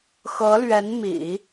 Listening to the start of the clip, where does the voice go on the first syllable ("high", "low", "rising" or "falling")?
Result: rising